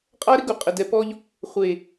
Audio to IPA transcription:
qʼa˦ɾɪ˦ ɡu˨qʼɪ˨dɛ˨pɔ˦ʎ | χʷeː˨

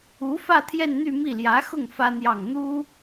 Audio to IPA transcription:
u˧˥fä˥˧ t̪ʰjɛ˥˧nn̪y˥˧mi˥˩ ljä˧˥xʊ˥˩ŋ fä˥n̪jɑ˥˩ŋ n̪u˥

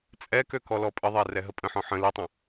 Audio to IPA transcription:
t͡sʼɛkø kɔlɔpʼəðˤɛ rɛɦəpʼə̃ħɔ̃ ħə̃ litˤə̃

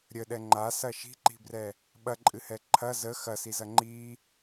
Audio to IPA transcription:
ɾʲəɗɛ ŋ͡ǃasɐ ʃi̤ǃi̤brɛ | ɓɐǃʼɨhɛ ǃʰɐ zə xɐsizɐ ŋ͡ǃi

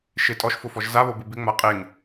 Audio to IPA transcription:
ʃɪ tʼɔʃfʊfɔʒ zaβobɪ bɪŋ͡ma qʼeŋ

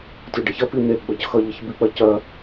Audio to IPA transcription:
tʲoɖəçɐ pin̪e ɡ͡bʌcxʌ ʎəçbik͡pɐcɐ

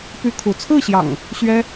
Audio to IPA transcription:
py˦kʰu˨˦ t͡sʰɹ̩˥˨ɕjɑ̰˨˩ŋ | ɕɥɛ˦

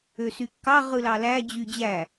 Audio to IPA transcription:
øsykːɑ ʁɯlɑlæ d͡ʑyd͡ʑæ

